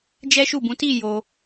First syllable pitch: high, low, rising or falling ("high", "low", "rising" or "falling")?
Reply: high